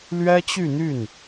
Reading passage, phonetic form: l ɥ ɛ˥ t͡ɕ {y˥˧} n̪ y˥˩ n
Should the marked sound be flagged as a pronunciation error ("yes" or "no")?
no